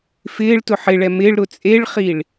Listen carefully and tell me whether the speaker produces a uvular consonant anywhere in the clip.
yes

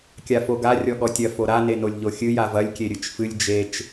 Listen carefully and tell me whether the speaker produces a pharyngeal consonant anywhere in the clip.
no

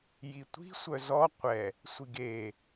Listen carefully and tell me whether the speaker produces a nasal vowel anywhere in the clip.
no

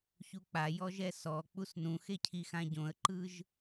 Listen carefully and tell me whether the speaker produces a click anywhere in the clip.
yes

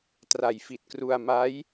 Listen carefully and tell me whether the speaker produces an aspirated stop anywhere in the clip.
no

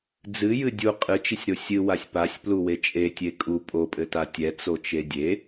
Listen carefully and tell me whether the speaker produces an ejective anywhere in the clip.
yes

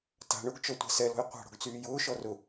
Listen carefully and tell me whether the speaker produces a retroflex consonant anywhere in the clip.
yes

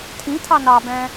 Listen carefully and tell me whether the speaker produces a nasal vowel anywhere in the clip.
yes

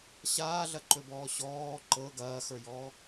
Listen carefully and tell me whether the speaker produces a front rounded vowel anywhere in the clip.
no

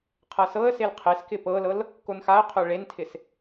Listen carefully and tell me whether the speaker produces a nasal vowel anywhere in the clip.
no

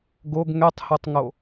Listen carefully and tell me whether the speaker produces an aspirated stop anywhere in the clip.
no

